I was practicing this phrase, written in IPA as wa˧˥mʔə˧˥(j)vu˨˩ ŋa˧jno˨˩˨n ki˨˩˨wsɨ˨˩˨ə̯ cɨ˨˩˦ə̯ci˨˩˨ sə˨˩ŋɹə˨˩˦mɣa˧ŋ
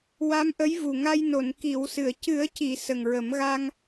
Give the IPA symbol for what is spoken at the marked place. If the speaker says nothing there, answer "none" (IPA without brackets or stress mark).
j